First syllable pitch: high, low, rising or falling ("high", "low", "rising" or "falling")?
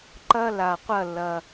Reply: high